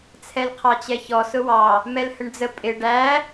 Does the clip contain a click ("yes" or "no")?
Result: no